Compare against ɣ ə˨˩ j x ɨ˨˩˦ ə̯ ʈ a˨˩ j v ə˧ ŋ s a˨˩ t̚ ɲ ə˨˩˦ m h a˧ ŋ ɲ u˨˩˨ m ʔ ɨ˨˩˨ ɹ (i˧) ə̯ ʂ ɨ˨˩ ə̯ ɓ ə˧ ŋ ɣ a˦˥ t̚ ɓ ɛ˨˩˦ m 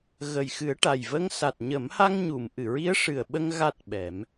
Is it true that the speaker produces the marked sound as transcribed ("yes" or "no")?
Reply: no